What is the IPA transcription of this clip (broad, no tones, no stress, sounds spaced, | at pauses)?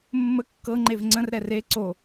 mː ə kː ɤ ŋ͡ǃ e v ŋ͡ǀ ə̃ r ɾ ɛ r e ǀ o